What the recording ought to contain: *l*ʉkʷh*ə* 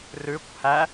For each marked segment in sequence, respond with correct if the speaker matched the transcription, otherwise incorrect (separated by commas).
incorrect, incorrect